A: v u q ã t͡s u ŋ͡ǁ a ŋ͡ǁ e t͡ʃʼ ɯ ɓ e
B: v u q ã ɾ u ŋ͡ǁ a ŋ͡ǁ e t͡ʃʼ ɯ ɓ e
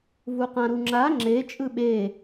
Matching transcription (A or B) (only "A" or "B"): B